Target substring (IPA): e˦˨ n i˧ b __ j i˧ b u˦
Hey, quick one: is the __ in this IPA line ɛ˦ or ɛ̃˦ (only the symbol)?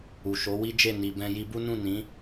ɛ̃˦